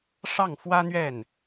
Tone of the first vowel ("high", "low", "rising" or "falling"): falling